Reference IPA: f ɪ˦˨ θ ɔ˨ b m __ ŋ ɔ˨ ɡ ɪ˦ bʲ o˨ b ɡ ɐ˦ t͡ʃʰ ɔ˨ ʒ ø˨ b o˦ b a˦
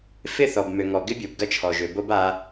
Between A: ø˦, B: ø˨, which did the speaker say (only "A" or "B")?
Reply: B